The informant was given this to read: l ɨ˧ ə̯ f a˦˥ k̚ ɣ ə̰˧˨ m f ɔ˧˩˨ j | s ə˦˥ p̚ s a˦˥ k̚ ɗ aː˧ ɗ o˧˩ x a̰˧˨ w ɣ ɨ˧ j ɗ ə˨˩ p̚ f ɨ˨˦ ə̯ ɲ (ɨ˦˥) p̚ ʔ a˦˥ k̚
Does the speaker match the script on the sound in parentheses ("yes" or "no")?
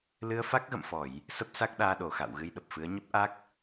no